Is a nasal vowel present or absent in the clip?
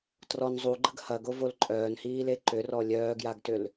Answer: absent